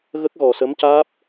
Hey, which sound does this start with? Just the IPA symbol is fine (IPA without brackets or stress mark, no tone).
ɣ